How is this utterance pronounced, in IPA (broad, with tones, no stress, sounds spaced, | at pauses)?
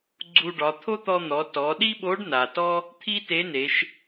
ɡ͡ǀ u˧ ɖ ɒ˩˧ t̪ʰ o˥ t̪ ɔ˧ n̪ ɔ˩˧ t ɔ˩˧ ɗ i˥ ɓ o˧˥ ɖ n a˩ t ɔ˥ | t̪ʰ i˥ t e˧˥ n e˩˧ ʃ